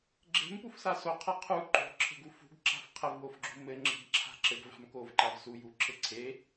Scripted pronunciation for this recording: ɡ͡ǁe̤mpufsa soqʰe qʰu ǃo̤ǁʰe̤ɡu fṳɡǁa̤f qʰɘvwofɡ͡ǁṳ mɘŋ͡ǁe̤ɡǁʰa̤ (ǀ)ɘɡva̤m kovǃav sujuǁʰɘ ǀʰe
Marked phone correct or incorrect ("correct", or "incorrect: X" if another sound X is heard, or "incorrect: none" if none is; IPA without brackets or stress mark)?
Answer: incorrect: ǁ